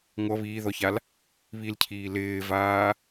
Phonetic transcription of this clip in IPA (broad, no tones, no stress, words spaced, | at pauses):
ŋʷʌ βiːðɔçal | βilcʰiː lɪːvaː